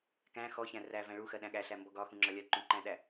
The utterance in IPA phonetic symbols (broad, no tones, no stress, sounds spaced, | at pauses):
k æ̃ x ɔ ç æ̃ r æ v æ̃ ɭ u x ɜ ɗ æ̃ ɠ æ ɬ æ m b ɔ ɡ ɒ x ũ ŋ͡ǁ ɒ lʲ ɜ ǃ ũ ǃ æ̃ ɗ æ